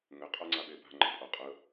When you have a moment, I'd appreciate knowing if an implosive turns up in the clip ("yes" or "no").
yes